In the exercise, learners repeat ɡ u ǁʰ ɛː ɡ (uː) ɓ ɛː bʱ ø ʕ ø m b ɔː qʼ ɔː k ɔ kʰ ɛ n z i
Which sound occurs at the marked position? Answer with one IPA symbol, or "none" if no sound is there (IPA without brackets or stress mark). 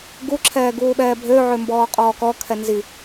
uː